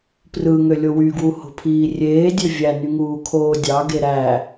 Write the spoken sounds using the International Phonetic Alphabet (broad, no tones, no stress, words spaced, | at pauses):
prɯŋølʲo wyɡwuho̤pʰiː rʲeːdʲø vʲænyŋuːkʰoː dʲɑɡe ɾæ